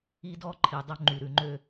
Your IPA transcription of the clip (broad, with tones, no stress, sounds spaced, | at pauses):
i˦ d ɔ˦ ǃʰ i˨ dˤ ɵ˦ ŋ͡ǃ y˨ ɾ ʉ˨ ŋ͡ǃ ø˦